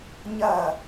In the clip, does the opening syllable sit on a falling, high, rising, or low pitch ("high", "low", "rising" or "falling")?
falling